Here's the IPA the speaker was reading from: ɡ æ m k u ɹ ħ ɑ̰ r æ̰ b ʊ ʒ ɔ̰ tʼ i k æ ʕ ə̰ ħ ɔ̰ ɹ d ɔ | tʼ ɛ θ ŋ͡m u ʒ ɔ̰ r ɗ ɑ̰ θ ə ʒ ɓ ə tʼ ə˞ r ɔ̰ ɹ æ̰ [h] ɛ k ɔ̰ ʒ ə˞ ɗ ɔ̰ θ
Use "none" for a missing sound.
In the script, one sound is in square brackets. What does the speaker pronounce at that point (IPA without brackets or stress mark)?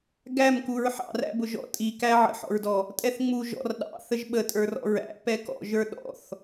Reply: p